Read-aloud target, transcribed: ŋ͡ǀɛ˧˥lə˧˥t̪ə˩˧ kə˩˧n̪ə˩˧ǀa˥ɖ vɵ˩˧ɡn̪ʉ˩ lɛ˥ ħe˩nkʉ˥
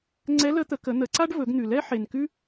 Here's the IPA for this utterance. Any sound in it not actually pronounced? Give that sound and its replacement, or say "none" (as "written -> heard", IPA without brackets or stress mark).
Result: none